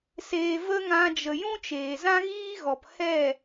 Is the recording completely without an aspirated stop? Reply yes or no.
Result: yes